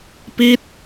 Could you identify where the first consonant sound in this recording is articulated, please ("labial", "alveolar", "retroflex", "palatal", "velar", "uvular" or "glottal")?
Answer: labial